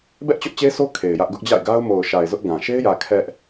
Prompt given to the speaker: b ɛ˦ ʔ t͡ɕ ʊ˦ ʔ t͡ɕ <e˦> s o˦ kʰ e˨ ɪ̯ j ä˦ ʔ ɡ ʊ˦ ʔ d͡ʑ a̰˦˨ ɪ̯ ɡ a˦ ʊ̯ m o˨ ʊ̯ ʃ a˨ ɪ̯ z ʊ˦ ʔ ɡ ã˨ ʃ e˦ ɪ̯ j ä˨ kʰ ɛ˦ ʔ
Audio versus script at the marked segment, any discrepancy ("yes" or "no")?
no